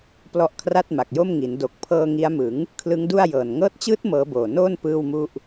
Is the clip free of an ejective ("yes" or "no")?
yes